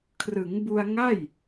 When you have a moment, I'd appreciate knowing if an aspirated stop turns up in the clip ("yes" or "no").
yes